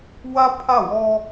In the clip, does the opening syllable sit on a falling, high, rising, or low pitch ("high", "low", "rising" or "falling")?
high